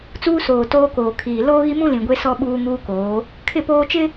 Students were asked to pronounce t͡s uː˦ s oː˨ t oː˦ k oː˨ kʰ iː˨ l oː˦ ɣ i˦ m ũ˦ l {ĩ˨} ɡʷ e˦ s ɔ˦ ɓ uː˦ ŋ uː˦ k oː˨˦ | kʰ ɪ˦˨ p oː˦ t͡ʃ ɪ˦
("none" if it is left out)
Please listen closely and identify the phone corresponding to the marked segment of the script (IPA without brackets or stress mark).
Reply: ĩ˨